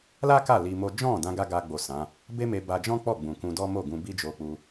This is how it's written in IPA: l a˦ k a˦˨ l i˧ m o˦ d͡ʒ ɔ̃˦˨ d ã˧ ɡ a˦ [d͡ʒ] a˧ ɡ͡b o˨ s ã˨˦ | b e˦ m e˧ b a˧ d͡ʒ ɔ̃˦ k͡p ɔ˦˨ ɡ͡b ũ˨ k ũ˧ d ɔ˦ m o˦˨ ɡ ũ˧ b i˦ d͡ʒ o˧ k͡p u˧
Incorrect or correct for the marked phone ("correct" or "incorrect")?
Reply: incorrect